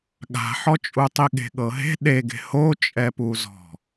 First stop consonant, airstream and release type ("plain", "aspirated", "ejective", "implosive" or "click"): implosive